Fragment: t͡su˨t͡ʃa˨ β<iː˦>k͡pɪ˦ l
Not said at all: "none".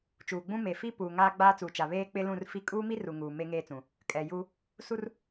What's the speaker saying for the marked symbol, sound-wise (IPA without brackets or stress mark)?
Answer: eː˦